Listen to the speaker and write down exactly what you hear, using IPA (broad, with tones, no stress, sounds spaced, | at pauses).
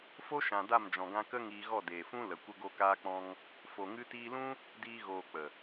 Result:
f o˦ ʃ ã˨ d a˦˨ m d͡ʒ ɔ̃˨ ɡ ã˧ k ə˦ ŋ iː˧ ɣ ɔ˦˨ d eː˨ f ũ˦ l ə˨ kʷ ə˧ ɡ o˧ k aː˧ k͡p ɔ̃˧ ŋ | f o˨ ŋ ɨ˧ t iː˧ l ũ˦ | d iː˧ ɣ oː˨ k͡p ə˨